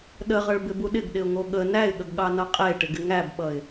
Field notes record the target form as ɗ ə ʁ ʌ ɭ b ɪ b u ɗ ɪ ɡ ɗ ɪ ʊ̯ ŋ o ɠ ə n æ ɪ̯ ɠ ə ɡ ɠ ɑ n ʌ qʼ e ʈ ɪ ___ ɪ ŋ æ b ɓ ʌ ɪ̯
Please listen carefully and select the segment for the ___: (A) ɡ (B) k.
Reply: A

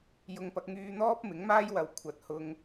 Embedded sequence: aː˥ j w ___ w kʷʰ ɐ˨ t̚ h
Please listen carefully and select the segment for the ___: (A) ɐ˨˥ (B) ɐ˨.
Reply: A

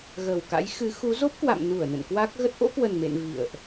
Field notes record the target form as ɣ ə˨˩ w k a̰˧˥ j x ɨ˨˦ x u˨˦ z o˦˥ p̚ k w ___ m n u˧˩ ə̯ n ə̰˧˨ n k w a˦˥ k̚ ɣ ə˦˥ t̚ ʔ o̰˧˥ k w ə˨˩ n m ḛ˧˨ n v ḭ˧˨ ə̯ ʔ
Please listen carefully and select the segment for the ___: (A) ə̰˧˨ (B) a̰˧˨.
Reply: B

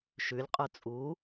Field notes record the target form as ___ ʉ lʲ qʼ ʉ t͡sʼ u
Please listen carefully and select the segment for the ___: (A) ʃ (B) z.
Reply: A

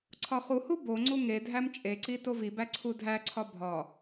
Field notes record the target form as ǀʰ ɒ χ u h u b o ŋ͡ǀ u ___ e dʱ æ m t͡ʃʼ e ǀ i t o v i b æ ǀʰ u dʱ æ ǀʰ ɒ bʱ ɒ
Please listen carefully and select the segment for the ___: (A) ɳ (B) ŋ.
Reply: B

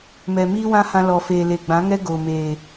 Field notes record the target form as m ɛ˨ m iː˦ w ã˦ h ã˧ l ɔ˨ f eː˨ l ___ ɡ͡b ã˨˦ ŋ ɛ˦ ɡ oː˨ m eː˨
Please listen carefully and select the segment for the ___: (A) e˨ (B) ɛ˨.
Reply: A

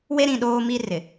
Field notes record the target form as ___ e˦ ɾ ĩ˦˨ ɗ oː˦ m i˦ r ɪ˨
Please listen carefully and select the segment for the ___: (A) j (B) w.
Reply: B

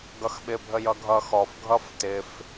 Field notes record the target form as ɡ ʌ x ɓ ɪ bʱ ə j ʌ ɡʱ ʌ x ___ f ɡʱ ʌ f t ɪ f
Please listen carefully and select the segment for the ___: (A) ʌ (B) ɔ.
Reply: B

